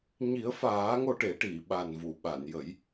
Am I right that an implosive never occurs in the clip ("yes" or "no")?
no